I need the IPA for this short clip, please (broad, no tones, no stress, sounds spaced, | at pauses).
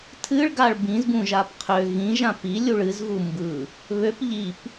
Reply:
tʰ ɨ ɭ ɡ a ɭ b ĩ z b ũ ʒ a p qʰ ø ɣ ĩ ʒ ã p i lʲ u ɭ ɨ z ɣ u m b ɯ | β ø p ʎ i p